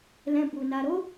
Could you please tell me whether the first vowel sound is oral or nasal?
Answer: nasal